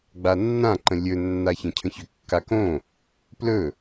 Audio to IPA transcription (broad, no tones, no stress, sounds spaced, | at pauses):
ɡ͡b a nː ã ǃ ə̃ lʲ ɵ nː a ç ə̃ cʰ ə̃ ç ʏ kː a k õ | p l ɵ